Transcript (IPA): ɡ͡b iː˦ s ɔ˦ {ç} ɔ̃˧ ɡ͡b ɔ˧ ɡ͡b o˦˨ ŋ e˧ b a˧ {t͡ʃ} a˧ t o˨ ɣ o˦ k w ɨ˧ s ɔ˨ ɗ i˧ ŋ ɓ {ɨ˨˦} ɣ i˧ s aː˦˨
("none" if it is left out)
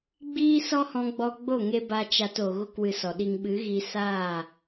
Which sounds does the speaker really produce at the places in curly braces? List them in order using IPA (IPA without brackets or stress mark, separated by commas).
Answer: h, t͡ʃ, ɨ˨˦